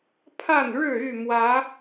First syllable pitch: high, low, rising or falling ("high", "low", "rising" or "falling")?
falling